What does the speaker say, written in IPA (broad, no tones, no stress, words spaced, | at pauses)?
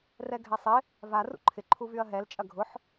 rɛɡʱɛsˤɪ | va rṵǃʰɪ ǃʰuvyɐ̯ɦɛl t͡ʃʼɐɡʱʊħ